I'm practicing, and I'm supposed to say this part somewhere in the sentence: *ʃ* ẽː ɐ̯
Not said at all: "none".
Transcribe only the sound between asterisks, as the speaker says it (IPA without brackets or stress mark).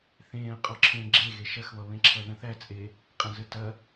θ